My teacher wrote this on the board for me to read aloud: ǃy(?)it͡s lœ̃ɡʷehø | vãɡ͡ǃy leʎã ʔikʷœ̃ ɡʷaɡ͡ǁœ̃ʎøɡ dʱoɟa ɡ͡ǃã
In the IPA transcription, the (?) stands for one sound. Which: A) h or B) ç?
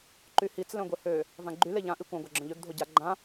A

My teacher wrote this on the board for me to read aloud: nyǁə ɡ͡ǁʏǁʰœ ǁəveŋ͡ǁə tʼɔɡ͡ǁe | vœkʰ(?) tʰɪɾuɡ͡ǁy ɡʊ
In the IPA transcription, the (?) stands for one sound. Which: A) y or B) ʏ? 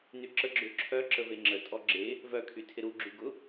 A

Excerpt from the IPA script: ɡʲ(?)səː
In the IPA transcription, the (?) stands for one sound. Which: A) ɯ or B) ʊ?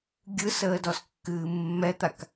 A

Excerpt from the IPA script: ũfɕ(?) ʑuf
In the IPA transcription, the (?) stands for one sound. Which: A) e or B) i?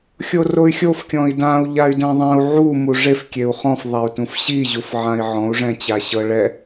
B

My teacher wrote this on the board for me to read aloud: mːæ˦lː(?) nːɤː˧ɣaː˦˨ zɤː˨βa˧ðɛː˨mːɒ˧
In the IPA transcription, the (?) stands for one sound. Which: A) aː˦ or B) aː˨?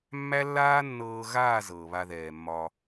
A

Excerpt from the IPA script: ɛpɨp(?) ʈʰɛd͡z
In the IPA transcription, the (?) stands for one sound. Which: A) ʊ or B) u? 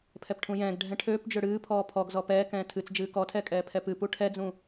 B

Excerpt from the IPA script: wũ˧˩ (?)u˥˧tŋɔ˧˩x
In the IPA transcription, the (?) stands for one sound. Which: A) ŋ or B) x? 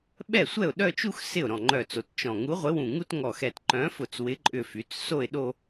A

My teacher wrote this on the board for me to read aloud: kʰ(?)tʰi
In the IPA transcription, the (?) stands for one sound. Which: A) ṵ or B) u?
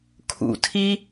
A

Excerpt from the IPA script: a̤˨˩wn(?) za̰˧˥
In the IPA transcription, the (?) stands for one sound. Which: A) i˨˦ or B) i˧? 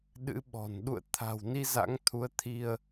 B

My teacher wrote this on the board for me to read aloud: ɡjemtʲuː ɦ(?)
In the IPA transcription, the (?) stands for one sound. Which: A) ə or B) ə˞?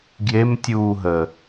A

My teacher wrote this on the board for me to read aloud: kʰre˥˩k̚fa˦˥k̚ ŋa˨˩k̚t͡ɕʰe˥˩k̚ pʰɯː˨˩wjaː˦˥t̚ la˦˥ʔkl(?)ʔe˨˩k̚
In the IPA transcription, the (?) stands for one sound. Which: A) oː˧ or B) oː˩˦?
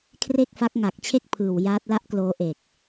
A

